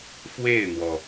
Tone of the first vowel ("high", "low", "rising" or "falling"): falling